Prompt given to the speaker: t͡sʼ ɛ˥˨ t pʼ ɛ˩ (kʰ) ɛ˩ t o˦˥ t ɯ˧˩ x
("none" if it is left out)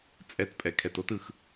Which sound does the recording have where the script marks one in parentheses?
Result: kʰ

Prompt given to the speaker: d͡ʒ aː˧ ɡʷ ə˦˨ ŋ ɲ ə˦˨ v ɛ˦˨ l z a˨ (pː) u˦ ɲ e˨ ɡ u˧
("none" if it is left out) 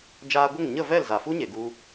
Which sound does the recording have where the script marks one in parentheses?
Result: f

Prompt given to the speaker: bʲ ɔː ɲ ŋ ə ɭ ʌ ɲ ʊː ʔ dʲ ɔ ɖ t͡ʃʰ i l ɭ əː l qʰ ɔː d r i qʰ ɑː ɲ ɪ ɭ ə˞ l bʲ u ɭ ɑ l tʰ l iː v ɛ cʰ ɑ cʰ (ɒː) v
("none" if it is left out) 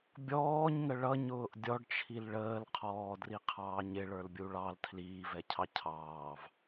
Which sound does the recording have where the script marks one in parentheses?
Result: ɑː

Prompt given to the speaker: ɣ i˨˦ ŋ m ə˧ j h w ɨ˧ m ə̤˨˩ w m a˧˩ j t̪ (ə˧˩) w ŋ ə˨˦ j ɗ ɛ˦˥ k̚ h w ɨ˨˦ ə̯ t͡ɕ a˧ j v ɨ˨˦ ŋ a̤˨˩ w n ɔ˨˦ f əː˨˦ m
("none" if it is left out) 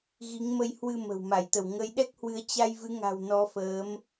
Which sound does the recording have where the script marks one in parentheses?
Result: ə˧˩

